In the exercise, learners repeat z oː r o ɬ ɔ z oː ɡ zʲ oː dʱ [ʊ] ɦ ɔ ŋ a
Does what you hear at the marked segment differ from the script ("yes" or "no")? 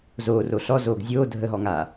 yes